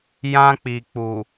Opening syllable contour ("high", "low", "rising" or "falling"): high